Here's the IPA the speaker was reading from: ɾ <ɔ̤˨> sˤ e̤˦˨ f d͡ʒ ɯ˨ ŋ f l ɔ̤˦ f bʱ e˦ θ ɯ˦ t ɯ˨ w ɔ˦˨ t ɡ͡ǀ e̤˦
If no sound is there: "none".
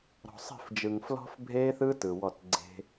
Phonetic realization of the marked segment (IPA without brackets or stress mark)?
ɔ̤˨